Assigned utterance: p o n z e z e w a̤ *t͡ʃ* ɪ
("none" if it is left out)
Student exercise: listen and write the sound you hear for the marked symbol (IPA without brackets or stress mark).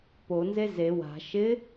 ʃ